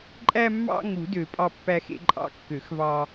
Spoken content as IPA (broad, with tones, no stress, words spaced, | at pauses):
ǃʼæ˧mːɑ̰˧ ŋu˨˩˦ dø˨˩˦pʼɑ˧pːæ˧xḛ˧ ǃʼɑ̰˧kːø˨˩˦xvɑ˧